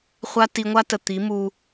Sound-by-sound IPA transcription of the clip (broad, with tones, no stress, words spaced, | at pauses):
χʷa˦ ti˧ŋʷa˦ tə˨ t̪i˨˦mu˧